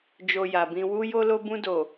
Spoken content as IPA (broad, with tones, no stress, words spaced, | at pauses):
d͡ʒo˧ja˨bĩ˧ wu˦ jo˧lo˧bũ˧do˨